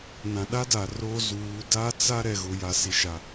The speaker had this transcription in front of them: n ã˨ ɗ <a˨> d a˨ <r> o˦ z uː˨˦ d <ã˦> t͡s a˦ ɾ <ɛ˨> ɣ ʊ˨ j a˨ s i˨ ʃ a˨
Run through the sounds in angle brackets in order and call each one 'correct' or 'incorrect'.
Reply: incorrect: a˦, correct, incorrect: a˦, correct

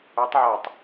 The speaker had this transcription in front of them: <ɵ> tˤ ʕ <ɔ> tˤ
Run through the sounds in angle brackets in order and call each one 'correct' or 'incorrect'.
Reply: correct, correct

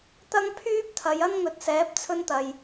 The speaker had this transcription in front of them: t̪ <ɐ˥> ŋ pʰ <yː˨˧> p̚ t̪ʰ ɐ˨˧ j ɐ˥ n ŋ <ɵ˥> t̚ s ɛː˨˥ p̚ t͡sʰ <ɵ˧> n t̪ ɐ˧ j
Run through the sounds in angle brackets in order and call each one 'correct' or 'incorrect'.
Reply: correct, incorrect: yː˥, incorrect: ɵ˨˥, incorrect: ɵ˥

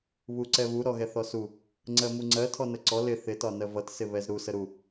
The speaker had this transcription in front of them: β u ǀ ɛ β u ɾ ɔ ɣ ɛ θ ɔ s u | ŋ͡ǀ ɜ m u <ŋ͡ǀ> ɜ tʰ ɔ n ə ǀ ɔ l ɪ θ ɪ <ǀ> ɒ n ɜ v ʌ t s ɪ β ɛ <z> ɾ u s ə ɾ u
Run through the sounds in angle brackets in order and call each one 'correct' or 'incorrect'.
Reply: correct, incorrect: t, correct

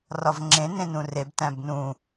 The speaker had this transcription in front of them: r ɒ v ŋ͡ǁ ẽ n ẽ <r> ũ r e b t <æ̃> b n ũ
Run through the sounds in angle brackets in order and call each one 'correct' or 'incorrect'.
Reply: incorrect: n, correct

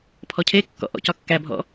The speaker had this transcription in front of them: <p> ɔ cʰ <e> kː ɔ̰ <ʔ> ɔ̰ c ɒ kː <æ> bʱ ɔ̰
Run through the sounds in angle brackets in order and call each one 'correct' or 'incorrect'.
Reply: incorrect: pʰ, correct, correct, correct

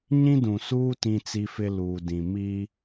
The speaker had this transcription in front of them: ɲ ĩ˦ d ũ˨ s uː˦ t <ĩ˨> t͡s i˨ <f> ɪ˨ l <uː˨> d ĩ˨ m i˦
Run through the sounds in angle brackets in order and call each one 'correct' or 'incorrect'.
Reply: correct, correct, correct

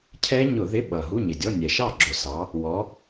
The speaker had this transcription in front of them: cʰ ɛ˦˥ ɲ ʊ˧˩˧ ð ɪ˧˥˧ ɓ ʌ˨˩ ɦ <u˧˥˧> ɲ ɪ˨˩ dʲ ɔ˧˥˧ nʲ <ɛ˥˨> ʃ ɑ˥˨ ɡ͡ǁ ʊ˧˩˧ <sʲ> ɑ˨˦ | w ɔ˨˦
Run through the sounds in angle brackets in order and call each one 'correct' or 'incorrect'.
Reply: correct, incorrect: ɛ˨˩, incorrect: s

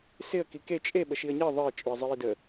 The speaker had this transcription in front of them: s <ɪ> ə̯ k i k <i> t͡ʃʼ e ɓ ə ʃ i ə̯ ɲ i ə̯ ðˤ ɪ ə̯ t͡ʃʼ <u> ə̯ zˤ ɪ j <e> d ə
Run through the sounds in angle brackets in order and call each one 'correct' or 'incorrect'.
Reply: correct, incorrect: e, correct, incorrect: i

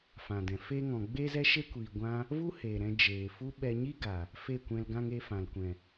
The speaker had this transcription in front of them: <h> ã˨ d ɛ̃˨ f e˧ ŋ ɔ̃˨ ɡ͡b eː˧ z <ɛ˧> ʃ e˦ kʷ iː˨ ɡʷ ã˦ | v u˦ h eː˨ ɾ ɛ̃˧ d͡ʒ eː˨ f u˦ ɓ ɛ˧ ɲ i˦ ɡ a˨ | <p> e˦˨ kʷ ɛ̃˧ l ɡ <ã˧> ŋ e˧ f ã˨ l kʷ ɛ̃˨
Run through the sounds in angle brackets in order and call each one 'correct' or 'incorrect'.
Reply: incorrect: f, correct, incorrect: f, correct

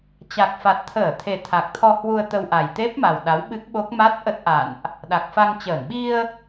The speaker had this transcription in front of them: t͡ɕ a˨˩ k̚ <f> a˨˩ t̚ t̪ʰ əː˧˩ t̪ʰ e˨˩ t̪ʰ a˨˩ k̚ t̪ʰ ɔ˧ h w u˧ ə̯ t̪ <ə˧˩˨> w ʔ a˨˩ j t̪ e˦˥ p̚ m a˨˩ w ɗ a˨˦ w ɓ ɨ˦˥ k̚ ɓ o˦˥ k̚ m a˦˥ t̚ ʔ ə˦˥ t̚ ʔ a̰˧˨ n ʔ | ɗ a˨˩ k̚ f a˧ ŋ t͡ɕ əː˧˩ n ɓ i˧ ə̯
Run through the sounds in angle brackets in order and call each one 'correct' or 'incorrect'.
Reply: correct, incorrect: ə˧

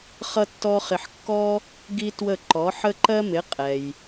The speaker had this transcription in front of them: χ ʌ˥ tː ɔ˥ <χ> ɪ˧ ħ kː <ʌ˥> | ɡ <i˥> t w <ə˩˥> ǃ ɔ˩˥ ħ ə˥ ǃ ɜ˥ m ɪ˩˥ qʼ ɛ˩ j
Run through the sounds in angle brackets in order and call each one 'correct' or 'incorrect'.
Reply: correct, incorrect: ɔ˥, correct, incorrect: ə˥˩

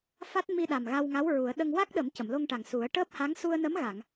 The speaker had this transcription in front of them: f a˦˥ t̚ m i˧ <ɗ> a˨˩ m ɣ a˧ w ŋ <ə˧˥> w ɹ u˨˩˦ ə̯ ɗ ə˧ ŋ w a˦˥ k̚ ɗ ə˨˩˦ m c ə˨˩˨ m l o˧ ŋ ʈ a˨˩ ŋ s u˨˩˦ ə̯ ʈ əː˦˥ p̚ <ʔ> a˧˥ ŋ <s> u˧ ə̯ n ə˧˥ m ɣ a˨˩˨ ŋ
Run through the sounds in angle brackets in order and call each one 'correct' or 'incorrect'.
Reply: correct, incorrect: a˧˥, incorrect: h, correct

